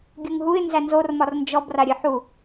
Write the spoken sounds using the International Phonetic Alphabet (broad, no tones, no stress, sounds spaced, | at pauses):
ɡʲ u ŋ ɦ u ɪ̯ n z æ n z o r m ɒ r n d͡ʒ ɔ b r a ɾʲ ɨ ħ u